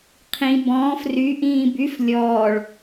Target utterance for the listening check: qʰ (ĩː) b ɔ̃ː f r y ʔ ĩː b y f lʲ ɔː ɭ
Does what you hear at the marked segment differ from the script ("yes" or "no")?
yes